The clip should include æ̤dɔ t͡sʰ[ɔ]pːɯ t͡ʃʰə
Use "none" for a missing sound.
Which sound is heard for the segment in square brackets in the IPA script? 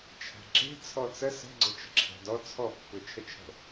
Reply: ɔ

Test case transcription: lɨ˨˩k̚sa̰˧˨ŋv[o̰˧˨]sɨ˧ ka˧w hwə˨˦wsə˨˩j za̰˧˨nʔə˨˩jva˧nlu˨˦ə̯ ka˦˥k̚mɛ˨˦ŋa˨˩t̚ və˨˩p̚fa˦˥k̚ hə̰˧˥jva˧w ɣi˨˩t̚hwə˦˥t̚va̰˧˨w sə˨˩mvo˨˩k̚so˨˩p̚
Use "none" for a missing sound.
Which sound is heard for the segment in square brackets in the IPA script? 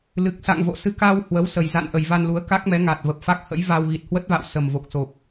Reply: o̰˧˨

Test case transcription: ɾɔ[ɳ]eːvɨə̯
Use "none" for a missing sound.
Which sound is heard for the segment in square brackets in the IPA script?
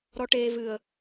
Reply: ʈ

